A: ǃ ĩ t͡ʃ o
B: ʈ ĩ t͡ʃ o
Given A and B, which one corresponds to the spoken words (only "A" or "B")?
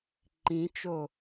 A